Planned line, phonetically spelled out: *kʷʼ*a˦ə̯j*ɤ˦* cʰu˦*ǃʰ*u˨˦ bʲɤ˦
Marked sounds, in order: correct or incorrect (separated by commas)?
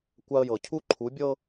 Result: incorrect, incorrect, correct